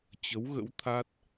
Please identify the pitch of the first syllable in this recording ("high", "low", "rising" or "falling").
rising